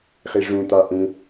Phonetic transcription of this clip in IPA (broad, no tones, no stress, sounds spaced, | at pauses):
χ i ʐ ũ t̪ a ʔ ẽ